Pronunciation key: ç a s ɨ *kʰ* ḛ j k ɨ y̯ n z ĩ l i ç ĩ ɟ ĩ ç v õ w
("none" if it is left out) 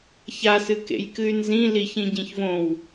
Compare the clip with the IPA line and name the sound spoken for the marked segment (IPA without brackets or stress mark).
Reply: k